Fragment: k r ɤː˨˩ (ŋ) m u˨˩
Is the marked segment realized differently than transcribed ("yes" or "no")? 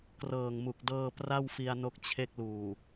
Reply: no